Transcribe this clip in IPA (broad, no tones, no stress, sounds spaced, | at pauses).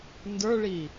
n d ə˞ ɭ i